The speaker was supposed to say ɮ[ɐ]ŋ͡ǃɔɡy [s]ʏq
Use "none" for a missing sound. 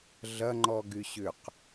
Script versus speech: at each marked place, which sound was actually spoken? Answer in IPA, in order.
ɐ, ɕ

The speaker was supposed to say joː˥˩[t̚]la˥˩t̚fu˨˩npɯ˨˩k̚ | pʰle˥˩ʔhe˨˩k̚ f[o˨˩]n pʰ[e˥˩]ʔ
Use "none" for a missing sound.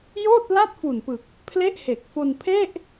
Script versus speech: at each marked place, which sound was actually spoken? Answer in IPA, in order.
t̚, o˧, e˥˩

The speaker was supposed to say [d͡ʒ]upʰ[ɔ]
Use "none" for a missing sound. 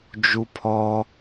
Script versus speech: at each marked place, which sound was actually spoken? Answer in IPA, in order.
d͡ʒ, ɔ

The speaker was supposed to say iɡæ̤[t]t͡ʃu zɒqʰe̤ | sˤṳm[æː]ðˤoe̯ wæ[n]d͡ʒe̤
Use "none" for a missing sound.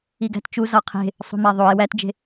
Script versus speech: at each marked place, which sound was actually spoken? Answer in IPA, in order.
t, æ, t

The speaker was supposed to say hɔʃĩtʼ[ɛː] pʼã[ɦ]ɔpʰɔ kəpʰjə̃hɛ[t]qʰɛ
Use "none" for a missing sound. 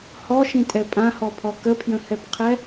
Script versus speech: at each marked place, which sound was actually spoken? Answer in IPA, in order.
ɛ, h, p

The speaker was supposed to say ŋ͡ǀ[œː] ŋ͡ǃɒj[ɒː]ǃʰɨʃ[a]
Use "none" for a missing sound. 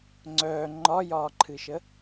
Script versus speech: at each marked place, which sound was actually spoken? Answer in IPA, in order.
œː, ɒː, ə

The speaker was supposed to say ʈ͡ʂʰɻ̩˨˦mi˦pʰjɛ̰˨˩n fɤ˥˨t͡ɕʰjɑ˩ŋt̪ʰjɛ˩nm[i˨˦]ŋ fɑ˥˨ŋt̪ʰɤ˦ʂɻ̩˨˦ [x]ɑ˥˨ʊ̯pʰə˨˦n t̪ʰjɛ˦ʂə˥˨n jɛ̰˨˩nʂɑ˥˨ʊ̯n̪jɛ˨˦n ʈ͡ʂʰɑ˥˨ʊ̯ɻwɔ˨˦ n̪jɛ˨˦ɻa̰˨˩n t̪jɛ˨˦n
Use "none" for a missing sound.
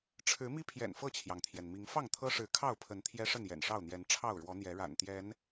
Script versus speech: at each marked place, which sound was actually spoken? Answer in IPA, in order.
i˨˦, kʰ

